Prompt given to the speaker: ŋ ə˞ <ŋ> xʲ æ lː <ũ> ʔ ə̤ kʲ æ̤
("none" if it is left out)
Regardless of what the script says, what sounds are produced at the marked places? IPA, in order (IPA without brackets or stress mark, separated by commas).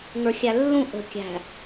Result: none, ũ